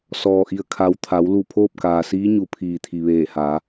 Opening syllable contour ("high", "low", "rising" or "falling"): low